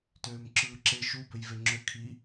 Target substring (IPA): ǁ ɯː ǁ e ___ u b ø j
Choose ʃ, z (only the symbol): ʃ